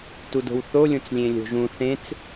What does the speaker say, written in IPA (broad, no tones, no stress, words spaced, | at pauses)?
tudo̤wθo lʲõt͡slʲẽlʲo̤ʒũ θẽt͡s